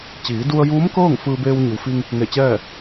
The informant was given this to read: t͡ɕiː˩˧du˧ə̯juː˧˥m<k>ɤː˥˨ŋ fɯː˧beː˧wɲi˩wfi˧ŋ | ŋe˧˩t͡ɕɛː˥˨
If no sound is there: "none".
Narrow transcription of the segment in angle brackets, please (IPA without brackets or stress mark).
k